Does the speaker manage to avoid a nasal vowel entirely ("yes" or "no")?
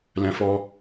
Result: no